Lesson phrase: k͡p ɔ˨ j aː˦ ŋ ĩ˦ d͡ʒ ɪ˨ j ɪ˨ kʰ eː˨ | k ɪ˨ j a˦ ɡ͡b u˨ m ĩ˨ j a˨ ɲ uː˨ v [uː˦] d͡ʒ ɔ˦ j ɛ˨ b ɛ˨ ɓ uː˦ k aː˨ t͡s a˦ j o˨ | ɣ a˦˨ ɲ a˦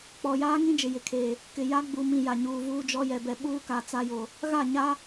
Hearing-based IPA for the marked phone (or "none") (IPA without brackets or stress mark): uː˦